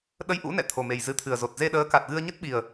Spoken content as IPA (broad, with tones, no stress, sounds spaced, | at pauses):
ɗ ə˧ j ʔ ṵ˧˥ n ɛ̰˧˨ t̪ʰ o˨˩ m e˨˩ j z ɨ˨˦ t̪ʰ ɨ˨˩ ə̯ z o˨˩ t̚ z e˧ ɗ əː˨˦ k a˨˩ t̚ ɣ ɨ˧ ə̯ ɲ ə˦˥ t̚ ɓ i˨˩ ə̯